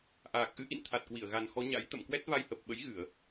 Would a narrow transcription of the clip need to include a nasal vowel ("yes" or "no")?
no